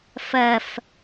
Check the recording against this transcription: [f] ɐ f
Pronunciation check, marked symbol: correct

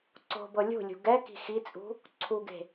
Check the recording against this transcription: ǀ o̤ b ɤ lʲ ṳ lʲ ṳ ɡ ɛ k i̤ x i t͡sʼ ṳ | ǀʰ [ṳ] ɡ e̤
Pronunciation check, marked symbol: incorrect: u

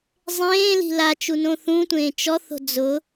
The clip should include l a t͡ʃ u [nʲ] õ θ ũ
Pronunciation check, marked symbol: incorrect: n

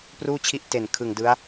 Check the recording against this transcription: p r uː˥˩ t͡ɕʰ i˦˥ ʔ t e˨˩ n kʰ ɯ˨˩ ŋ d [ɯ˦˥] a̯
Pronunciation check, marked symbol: correct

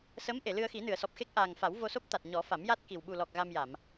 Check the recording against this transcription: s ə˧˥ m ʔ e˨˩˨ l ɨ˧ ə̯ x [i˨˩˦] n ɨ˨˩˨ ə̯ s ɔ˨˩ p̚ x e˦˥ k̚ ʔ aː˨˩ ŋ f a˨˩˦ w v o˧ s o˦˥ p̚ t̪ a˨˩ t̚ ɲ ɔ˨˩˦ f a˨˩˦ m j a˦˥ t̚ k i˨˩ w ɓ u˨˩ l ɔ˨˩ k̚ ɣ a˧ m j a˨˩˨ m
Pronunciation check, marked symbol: correct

